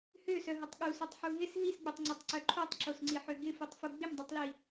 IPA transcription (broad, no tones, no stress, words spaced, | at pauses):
høsœɦʊtˤ ɠusœtˤħu ɦɪs ɦisɡ͡bøtˤŋ͡ǀøtˤǀœ ǃʰotˤǁosŋ͡ǀiħø ɡɪfutˤfu ɡ͡bɪmdˤitˤli